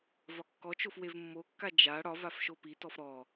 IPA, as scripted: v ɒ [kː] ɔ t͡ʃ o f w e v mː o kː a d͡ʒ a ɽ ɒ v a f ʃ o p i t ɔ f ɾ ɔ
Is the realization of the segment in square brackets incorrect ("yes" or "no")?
no